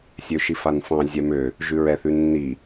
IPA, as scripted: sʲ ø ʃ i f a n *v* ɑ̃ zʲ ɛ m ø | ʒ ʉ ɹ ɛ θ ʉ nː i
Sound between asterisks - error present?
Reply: yes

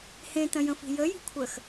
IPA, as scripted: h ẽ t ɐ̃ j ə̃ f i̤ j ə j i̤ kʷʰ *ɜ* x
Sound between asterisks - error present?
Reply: no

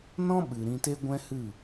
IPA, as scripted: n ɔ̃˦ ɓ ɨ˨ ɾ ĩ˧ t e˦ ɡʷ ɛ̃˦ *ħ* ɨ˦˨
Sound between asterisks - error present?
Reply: yes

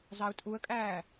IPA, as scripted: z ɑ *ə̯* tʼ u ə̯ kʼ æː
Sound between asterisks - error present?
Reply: yes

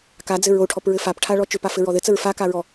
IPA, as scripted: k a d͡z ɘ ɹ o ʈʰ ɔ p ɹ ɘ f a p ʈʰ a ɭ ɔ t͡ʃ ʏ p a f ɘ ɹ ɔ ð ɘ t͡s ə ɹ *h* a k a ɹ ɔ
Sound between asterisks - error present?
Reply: yes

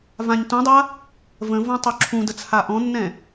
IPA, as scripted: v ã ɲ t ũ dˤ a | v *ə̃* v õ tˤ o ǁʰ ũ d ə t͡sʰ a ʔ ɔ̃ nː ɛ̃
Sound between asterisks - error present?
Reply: no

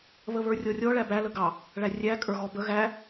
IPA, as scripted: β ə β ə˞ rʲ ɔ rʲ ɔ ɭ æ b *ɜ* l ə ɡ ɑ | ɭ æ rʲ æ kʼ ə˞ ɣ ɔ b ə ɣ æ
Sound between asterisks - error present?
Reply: yes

